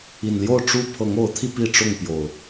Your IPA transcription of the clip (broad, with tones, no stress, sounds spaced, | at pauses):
i˨˩ n l j o˥˨ ʊ̯ ʈ͡ʂ u˥˨ pʰ ɤ˨˦ ŋ o˨˦ ʊ̯ t̪ʰ i˧ p i˥˨ ʈ͡ʂ ʊ˥˨ ŋ p j o˨˩ ʊ̯